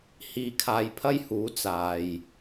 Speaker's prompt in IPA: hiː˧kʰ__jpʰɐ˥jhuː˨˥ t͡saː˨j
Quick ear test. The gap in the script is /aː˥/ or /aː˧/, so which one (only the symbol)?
aː˧